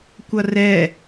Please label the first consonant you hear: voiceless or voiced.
voiceless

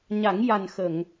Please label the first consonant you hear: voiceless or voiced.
voiced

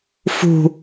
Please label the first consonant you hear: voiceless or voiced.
voiceless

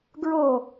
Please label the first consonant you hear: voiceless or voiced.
voiced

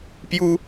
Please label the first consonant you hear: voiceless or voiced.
voiceless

